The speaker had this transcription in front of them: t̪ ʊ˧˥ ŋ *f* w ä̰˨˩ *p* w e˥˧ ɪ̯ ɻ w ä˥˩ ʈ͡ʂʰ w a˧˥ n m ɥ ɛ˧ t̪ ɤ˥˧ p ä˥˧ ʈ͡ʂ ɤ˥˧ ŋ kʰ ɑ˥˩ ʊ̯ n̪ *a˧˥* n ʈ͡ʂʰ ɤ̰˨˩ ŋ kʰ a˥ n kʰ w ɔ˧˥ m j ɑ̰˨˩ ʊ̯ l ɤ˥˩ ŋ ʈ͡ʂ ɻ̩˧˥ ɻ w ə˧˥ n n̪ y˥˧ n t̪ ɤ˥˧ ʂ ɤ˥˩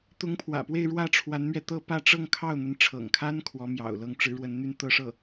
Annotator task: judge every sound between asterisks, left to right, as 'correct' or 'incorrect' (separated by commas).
incorrect, correct, incorrect